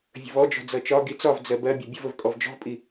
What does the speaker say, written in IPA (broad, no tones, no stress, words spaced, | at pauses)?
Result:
vʲə̤vɔd͡ʒɔ̤ d͡zʌt͡ʃɒɡi t͡sɒv d͡zɜbɜbʲʌ bʲəvəv kʼɔvd͡ʒɔ̤vpʼi